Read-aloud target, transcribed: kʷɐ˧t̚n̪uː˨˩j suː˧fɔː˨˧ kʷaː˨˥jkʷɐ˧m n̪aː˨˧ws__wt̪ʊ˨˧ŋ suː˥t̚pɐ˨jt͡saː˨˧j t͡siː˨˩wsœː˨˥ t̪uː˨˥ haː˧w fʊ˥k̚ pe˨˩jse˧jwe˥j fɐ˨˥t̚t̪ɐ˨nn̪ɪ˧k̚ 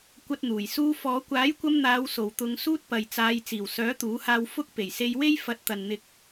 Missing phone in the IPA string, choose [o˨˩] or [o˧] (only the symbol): o˨˩